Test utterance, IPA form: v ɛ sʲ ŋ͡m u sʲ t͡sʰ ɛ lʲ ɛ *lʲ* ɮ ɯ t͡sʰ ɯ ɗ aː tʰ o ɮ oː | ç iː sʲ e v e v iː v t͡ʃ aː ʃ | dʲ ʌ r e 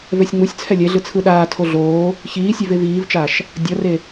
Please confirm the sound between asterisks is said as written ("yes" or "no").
no